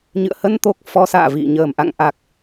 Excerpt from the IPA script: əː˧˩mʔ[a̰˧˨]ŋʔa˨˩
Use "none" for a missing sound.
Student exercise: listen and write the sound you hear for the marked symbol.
a̰˧˨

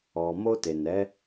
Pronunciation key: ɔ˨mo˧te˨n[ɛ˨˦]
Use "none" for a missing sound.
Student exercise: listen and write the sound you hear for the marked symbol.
ɛ˨˦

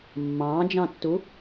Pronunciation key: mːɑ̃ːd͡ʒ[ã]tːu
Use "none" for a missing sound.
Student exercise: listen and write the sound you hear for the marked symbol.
ɑ̃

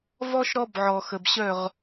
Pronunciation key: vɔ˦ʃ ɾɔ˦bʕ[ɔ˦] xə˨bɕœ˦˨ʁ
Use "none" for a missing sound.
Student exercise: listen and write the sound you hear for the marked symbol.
ɔ˨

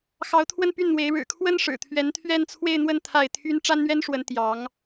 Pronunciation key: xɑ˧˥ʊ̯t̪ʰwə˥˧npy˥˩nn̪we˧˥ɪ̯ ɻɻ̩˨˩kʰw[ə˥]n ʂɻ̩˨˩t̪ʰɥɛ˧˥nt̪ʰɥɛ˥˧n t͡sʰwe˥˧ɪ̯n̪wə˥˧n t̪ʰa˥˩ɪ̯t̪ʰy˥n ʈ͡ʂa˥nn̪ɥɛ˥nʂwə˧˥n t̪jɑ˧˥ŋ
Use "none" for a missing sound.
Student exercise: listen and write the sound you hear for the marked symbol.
ə˥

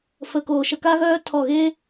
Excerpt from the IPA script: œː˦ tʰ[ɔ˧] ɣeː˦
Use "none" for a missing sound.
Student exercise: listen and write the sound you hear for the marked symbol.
ɔ˦˨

